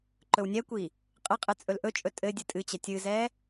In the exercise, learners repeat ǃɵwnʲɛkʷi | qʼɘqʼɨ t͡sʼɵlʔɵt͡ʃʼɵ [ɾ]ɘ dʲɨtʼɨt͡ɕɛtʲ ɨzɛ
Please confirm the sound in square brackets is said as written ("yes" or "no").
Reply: no